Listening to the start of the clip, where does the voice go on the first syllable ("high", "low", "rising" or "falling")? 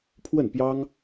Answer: falling